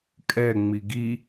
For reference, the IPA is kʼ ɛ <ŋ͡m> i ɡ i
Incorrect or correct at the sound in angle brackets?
correct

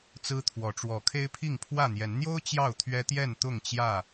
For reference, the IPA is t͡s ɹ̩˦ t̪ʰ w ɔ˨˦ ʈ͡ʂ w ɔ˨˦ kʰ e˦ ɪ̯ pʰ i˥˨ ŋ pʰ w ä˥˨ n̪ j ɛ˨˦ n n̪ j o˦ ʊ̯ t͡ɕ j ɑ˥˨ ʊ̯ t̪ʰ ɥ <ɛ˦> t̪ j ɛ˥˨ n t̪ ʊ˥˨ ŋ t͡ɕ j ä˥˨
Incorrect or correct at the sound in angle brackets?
correct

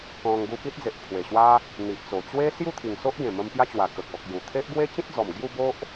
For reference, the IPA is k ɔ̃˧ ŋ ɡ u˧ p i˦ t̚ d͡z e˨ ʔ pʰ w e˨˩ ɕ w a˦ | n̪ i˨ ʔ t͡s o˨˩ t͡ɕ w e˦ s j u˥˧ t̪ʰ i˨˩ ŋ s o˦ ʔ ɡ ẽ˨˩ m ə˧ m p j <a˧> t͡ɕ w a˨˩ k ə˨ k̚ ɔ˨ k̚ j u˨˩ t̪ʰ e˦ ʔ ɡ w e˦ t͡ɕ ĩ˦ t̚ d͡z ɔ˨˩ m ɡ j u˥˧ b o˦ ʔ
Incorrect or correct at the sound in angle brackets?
incorrect: a˦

